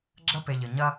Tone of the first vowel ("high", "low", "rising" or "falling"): high